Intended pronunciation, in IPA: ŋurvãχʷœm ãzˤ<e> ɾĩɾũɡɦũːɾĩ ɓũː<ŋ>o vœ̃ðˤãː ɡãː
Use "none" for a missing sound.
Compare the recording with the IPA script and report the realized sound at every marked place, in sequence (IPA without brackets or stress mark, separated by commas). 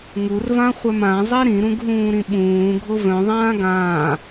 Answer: e, ɡʱ